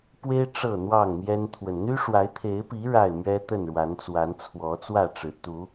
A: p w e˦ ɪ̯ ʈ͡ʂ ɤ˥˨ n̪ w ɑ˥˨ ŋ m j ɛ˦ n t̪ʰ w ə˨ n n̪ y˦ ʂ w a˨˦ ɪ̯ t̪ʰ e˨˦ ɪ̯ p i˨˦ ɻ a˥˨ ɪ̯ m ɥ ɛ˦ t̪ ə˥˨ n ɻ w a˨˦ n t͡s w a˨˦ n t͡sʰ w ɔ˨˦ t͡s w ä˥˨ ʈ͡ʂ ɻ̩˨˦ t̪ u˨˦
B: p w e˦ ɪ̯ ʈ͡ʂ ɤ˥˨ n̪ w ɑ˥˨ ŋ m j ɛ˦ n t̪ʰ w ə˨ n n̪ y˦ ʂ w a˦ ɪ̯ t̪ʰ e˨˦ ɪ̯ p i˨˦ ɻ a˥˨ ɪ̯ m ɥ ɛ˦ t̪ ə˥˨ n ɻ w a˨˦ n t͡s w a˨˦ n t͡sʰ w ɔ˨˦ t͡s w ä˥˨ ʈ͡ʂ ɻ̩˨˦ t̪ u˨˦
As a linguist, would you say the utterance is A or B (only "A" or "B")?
A